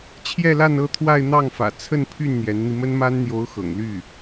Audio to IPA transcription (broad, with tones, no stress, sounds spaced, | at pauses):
t͡ɕʰ j ɛ˥˧ l a˥˧ n ɤ˥˧ t̪ʰ w a˥˧ ɪ̯ n̪ ɑ˥˩ ŋ f ä̰˨˩ t͡sʰ ə˥˧ n pʰ y˥˩ n n̪ j ɛ˧˥ n n̪ i˧ m ə˥ n m a˥ n n̪ j o˧˥ ʊ̯ x ɤ̰˨˩ ŋ l y˥˩